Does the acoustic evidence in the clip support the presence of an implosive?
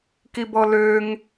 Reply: no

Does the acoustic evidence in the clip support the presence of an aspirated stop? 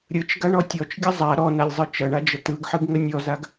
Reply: no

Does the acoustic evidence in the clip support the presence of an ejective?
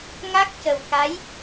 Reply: no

